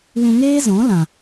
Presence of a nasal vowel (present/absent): present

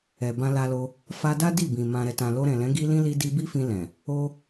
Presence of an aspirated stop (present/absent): absent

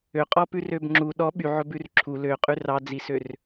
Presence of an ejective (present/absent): present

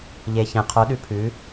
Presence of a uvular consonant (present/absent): present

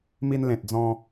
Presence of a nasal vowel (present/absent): present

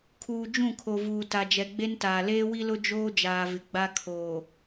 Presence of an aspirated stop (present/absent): present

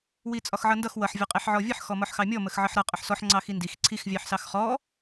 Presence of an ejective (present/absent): present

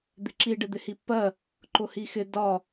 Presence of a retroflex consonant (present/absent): present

